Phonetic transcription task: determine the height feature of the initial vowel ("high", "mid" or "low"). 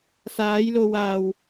low